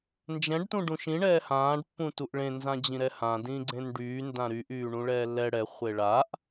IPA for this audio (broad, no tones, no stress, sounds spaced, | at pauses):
n d͡ʒ ɛ̃ ɖ t ũ ɖ ũ ʃ ĩ ɳ ɛː h ãː ɖ pː ũ t u ʔ ɭ ẽ n z ã d͡ʑ ĩ ɾ ɛ h ã d ĩ ɡ͡ǀ ẽ n ɖ yː n d ã ɾ y ʔ yː ɳ ũ ɭ ɛː lː ɛ ɽ ɛ χʷ e ɭ a ʔ